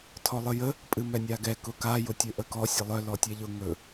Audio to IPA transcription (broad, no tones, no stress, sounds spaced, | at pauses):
tʰ ɔ lˠ ɨ j ə | pʼ ɨ m ɛ nʲ a ɡ ɛ k ʊ k a j ʊ tʲ ɵ ʔ ə k ɔ sʲ ə lˠ œ l ɔ tʲ ɛ ʎ ʊ ŋ ɵ